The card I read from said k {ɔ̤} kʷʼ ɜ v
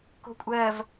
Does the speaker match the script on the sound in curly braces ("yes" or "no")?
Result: no